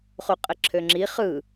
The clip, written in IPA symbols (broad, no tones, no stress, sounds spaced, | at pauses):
χ u qʼ ə ǁʰ ø ŋ͡ǁ i χ ɯ